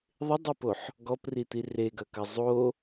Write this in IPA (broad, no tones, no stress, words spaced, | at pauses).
ðˤɪdˤipoħ | ɡɔprit̪i reɡɐkɐ zˤo